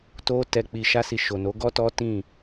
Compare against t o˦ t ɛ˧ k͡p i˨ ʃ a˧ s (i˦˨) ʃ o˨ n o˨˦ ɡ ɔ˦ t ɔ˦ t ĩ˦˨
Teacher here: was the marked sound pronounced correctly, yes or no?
no